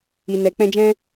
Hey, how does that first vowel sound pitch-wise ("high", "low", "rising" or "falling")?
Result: low